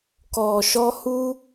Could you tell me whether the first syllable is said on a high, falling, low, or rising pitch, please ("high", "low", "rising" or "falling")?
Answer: low